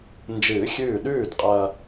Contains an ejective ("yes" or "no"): yes